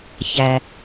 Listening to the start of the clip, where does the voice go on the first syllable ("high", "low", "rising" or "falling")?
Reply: low